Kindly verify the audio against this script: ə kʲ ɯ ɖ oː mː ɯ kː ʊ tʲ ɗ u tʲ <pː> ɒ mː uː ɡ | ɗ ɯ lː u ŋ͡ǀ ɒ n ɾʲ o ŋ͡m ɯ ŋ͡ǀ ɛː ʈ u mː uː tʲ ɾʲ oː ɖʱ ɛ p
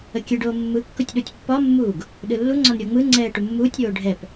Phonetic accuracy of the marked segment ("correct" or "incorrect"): correct